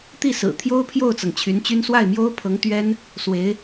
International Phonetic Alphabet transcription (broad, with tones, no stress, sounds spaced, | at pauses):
t̪ i˥˩ s ɹ̩˨˩ t̪ʰ j o˥ ʊ̯ pʰ j o˥˩ ʊ̯ t͡s ɤ˩ ŋ t͡ɕʰ y˧˥ n t͡ɕ y˥ n s w a˥˩ ɪ̯ m j o˥ ʊ̯ pʰ ɤ˧˥ ŋ t̪ ɥ ɛ˥ n | s w e˧˥ ɪ̯